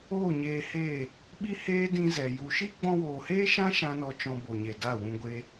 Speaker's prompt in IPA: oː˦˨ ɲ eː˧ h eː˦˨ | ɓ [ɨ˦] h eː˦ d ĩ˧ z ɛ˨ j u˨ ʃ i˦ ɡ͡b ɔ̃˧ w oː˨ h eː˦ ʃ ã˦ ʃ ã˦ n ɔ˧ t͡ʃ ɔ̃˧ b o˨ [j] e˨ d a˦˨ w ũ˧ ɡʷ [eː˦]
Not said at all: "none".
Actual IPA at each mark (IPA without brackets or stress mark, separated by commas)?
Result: i˦, ɲ, e˦